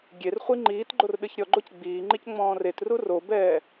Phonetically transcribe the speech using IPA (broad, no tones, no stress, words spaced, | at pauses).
ɡʲerχʷi ŋ͡ǃiːt ɡ͡ǃorɗɨçɾʲɔɡ͡ǃoc ɡ͡biː ŋ͡ǃicŋ͡mɔ̃ːretru robɛː